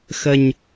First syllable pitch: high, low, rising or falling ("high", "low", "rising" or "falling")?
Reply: low